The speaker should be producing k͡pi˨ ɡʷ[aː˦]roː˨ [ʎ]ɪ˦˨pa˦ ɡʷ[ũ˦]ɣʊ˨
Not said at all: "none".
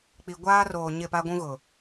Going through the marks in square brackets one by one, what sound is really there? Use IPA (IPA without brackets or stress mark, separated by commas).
aː˦, ɲ, ũ˦